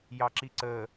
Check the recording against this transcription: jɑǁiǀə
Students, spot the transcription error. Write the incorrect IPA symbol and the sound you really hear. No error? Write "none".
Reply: none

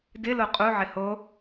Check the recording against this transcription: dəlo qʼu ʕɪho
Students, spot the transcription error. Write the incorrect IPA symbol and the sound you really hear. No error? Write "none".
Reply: ə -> ɪ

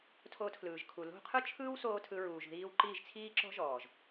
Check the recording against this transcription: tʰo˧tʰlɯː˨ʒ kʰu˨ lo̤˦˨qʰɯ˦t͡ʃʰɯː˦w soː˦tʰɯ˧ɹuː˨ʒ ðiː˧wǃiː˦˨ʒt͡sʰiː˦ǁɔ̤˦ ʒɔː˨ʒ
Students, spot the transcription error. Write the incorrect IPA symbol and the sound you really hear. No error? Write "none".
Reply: none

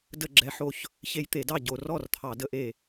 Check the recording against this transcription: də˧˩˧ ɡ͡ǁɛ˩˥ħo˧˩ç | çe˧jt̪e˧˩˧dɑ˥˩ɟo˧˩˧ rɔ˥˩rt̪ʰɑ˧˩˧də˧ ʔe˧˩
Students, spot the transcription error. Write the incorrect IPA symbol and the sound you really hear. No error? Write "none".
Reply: none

